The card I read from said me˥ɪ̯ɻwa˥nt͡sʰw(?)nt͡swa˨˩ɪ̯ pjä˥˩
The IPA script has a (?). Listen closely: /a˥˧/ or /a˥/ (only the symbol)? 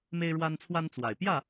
a˥